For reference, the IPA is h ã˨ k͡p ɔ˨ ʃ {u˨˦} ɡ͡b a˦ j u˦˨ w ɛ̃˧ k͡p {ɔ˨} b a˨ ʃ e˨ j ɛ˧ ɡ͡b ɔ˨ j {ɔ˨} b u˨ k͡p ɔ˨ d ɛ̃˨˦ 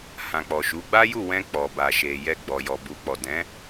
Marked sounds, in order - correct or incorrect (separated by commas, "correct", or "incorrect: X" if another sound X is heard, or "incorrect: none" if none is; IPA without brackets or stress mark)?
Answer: correct, correct, correct